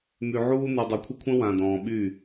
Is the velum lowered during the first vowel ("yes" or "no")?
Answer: no